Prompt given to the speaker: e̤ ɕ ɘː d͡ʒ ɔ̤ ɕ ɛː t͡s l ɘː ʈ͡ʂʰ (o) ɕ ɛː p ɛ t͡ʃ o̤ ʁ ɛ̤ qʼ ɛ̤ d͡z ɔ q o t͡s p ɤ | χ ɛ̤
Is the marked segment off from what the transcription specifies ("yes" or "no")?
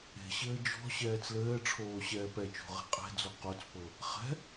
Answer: yes